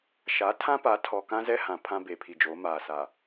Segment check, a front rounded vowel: absent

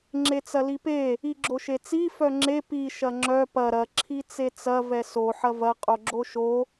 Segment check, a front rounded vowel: present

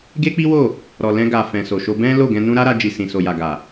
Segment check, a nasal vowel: present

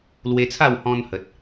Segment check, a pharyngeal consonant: absent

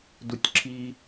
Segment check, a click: present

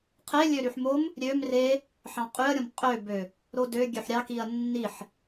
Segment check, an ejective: present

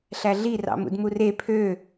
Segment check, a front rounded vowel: present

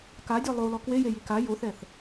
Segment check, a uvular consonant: absent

